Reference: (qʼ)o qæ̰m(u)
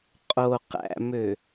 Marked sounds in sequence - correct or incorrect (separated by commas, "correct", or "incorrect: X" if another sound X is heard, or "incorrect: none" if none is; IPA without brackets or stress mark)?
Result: correct, incorrect: ø